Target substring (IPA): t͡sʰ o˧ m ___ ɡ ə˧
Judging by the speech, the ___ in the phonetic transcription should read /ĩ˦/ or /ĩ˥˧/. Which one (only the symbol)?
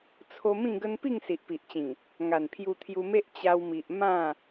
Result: ĩ˥˧